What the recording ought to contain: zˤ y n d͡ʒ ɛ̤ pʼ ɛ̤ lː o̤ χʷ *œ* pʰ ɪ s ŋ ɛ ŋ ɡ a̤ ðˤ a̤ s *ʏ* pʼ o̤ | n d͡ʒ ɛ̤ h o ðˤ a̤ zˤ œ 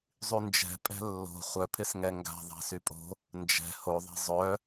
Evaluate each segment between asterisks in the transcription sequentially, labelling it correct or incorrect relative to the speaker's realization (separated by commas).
correct, incorrect